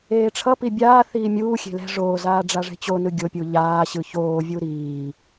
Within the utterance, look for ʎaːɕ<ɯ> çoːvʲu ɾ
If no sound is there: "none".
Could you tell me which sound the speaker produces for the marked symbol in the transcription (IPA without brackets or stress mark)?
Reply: ɯ